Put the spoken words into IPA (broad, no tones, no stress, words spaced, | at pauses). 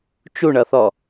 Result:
t͡ʃuɳʌθɔ